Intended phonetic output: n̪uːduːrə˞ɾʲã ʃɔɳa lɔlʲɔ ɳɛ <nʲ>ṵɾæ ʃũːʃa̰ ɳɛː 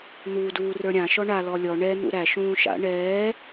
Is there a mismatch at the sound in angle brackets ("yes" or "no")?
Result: yes